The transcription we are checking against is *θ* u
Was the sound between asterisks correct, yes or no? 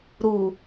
no